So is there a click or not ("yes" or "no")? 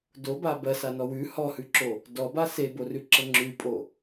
yes